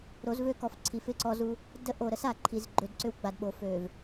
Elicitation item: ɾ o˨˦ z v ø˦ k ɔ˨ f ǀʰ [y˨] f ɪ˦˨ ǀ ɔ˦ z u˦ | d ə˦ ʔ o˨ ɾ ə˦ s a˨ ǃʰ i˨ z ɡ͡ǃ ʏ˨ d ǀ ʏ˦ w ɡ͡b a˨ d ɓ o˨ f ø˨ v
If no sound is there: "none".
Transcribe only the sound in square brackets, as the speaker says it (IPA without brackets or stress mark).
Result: i˨